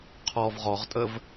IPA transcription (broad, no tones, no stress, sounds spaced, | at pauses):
qʰ ɔ v ʁ ɔ ʁ tʼ ə v